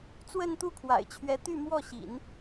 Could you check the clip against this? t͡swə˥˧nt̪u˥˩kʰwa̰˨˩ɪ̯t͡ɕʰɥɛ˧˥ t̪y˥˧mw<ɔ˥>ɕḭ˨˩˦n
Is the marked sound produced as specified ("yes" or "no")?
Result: no